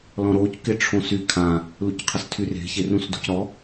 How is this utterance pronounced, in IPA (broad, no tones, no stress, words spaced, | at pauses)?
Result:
lɔ̃ɾoc kɪʈ͡ʂʰõsy kʰã | lucqʰəstʰyr e̤ çerũsdo̤cɾɔ